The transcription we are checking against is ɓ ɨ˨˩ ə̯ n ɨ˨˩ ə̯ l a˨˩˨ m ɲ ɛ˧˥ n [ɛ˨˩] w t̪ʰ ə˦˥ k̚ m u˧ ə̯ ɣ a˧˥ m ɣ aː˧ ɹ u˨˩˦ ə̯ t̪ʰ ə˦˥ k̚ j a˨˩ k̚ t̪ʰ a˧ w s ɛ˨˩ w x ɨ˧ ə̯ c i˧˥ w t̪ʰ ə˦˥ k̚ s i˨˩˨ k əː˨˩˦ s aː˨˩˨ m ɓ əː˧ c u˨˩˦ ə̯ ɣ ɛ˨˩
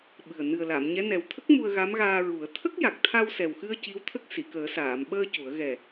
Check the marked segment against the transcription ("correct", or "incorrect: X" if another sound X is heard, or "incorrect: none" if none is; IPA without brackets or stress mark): correct